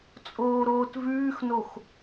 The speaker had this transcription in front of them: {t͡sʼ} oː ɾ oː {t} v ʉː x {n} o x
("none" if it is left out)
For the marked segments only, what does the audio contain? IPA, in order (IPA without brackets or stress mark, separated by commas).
t͡sʼ, t, n